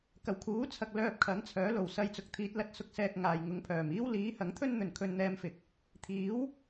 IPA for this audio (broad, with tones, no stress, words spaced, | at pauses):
kɐ˨˩wkʰuː˨˥t͡sʰɐ˨k̚ lœː˧p̚kʰɐ˨˥ŋt͡sʰœː˨˥ lo˨˩wsɐ˧jt͡sʊ˨k̚ t̪ʰiː˨˥t̚lɐ˨˥t̚sʊ˧k̚sɛː˧k̚ ŋaː˨j ŋʊ˨˧ŋpʰœː˨˩miː˥w liː˨˥hɐ˨˥ŋt̪ʰɵ˥nn̪ɵ˨n kʰɵ˧nn̪ɛː˧mfɪ˨k̚ | t̪ʰiː˨˥w